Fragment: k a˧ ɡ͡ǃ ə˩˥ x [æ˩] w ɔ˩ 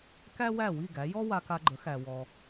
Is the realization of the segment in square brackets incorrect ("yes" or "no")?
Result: no